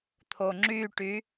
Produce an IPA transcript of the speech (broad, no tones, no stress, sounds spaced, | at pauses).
t̪ʰ o ŋ͡ǁ y ʈ y